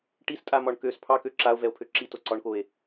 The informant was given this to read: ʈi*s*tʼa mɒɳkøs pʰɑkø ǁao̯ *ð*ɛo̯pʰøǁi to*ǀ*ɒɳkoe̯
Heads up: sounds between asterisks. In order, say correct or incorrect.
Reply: correct, incorrect: v, correct

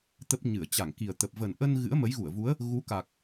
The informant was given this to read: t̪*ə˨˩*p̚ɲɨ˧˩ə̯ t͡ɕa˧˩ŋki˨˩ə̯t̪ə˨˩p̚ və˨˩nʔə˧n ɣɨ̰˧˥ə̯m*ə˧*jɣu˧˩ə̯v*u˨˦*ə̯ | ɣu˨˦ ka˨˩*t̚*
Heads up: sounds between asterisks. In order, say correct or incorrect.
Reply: incorrect: ə˦˥, incorrect: ə˨˦, correct, incorrect: k̚

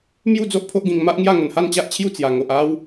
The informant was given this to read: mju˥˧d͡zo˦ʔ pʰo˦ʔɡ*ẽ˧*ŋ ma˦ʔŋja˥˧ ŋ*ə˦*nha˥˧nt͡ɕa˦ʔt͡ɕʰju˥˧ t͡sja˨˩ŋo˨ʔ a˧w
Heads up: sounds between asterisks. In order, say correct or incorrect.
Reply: incorrect: ĩ˧, incorrect: ə˨˩

